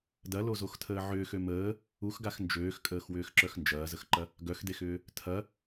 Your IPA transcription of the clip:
d ɐ l o z o x tʰ əː ʕ ʏː x ø m əː | u x ɡ a x n d͡ʒ øː x kʼ əː x w ʏː x ǁ œ x n d͡ʒ ɐː z ə x ǃ ɐ | ɡ œ x d e x ʏː | tʰ ɐ

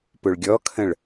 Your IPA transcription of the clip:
p ʊ ɭ ɡʲ ɔ kʰ ə̃ ɭ

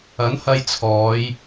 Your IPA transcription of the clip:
ɐ˨˥ n h ɐ˧ j t͡sʰ ɔː˨˧ j

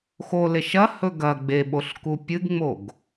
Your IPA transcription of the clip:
x o l e ʃ ɐ h ɵ ɡ ɐ ɡ͡b e ɓ o ɬ k u pʲ ɨ ɡ ŋ͡m o ɡ

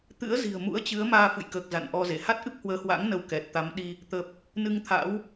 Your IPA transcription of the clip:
t̪ ɨ̰˧˥ ə̯ z i̤˨˩ ə̯ m ṵ˧˥ ə̯ t͡ɕ ɨ˨˦ ə̯ m aː˧ f ɨ̰˧˨ j k əː˨˩ k̚ z a̰˧˨ n ʔ ɔ˧ z e˧˩ h a˦˥ t̚ ʔ ɨ˦˥ p̚ h w əː˨˦ h w a̰˧˥ ŋ n ə˧ w k ɛ˨˩ t̚ t̪ a˨˦ m ɗ i˧ | t̪ ə˨˩ p̚ | n ɨ˧ ŋ t̪ʰ a̰˧˥ w

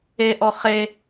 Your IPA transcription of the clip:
e ʔ ɔ χ e

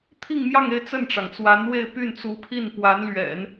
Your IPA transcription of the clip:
t̪ʰ i˥˧ ŋ m j ɑ˥˧ ŋ e˥˧ ɪ̯ t͡s ə˥˩ n ʈ͡ʂ ɑ˩ ŋ t͡s w a˧˥ n w e˥˧ ɪ̯ p y˥˩ n t͡s u˧˥ pʰ i˥˩ n p w a˧˥ n l ɥ ɛ̰˨˩˦ n

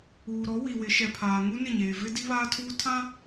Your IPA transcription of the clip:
uː˨ ɾ ɔ˨˦ w i˨ w ɪ˨˦ ʃ ɛ˨ pʰ aː˨ ŋ u˦ n ɪ˦˨ ɲ eː˨ v ɪ˦ d i˦ β aː˦ tʰ uː˦ tʰ ã˦

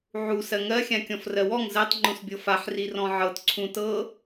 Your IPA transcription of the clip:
ʕ u s ɜ ŋ ɜ xʲ ã kʲ ɔ̃ f r ɜ w ɔ ŋ z ɜ tˤ ŋ͡ǃ ũ s bʲ ɤ f a ħ r i r ɔ̃ ʕ ɤ t ǀʰ ũ t ɤ

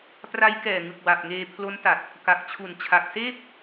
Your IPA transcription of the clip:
p r a˦˥ j k ɛː˨˩ ŋ ɯ˨˩ k̚ w a˨˩ p̚ ŋ eː˧ pʰ l o˦˥ n t a˨˩ t̚ | k a˨˩ k̚ t͡ɕʰ u˨˩ n t͡ɕʰ a˨˩ k̚ s eː˥˩ p̚

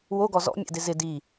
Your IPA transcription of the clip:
w o ɡ ɔ z ɔ̰ mʲ ɛ̰ d ɪ z ɪ d i

